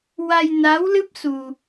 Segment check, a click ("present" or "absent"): absent